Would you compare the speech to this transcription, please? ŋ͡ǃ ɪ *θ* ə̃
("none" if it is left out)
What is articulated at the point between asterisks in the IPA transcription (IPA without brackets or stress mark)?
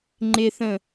θ